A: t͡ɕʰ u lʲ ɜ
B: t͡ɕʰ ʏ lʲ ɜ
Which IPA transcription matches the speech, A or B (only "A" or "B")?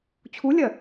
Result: A